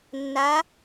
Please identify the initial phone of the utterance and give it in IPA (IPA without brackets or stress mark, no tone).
nː